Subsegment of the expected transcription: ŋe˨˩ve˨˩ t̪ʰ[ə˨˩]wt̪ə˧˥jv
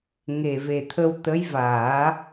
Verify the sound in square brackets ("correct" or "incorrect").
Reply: incorrect